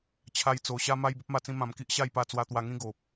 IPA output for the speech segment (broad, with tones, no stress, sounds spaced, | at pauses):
t͡ɕʰ a˧ j t͡s o˨˩ ɕ a˧ m a˧ j b ə˦ p̚ m a˧ t͡s ĩ˧ m ã˨˩ m k i˦ ʔ ɕ a˥˧ j p a˧ t͡s w a˧ t̪ w a˧ ŋ ĩ˦ ɡ o˨ p̚